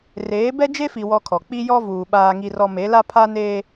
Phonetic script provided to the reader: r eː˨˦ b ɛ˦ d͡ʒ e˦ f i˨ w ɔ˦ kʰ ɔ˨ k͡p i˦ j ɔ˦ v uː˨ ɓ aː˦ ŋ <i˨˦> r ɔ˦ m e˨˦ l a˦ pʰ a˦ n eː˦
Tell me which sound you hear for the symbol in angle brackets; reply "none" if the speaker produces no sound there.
i˦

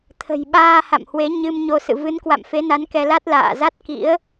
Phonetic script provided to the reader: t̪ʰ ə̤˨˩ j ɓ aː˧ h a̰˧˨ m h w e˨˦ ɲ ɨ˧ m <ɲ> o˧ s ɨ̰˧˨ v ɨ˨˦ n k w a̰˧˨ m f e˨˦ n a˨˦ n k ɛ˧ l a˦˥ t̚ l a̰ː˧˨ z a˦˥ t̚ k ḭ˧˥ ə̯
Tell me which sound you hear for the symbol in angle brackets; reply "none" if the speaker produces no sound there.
ɲ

